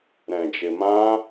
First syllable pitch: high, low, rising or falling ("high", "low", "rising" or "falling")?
low